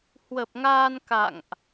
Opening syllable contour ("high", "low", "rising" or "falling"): low